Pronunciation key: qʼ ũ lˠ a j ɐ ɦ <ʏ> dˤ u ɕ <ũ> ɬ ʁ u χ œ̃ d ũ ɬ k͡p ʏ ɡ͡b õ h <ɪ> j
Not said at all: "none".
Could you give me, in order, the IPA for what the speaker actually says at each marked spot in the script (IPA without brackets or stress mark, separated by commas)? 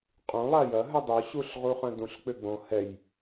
ʏ, u, ɛ